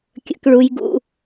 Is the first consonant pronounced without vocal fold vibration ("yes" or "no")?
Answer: yes